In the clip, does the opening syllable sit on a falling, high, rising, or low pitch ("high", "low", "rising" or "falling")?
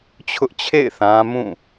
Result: high